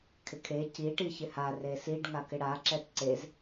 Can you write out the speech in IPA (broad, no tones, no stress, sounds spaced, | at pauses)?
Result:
kʰ ɪ kʰ e c i ʈ i ç ɪ h a r e s i ɖ ŋ a k ɪ ɽ a ǁ ɛ t ǀ e z